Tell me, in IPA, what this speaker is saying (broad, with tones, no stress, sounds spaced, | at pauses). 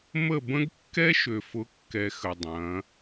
m ə˦˨ b ə̃˦ ɡ kː ɛ˦ ʃ ø˨ f ʊ˨˦ kː ɛ˧ x ə˨ dˤ ɐ̃˨˦